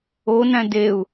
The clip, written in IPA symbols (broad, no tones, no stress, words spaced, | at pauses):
onæ̃ deu̯